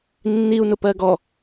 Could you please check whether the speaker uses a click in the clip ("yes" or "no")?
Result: no